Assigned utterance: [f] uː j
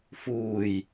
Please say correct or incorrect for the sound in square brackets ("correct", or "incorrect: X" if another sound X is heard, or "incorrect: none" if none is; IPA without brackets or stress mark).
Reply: correct